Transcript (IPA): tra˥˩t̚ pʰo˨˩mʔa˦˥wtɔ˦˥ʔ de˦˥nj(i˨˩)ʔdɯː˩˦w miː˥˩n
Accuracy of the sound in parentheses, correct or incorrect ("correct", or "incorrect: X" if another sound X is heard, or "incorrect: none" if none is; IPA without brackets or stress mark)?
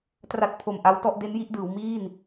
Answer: incorrect: i˥˩